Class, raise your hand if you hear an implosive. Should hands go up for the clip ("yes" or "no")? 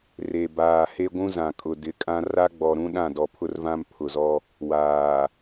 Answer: yes